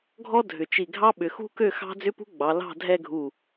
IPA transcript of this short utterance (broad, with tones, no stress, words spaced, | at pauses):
ɡʱɔ˥dʱʏ˩˧t͡ʃi˧˩ɡʱɑ˥ ɓʏ˩˧xṳ˥kø˥˧ xɑ̤˥ d͡zʏ˥pṳ˥ɡ͡bɑ˩˧ lɑ̤˥˧dʱɛ˥˧ɡʱu˧˩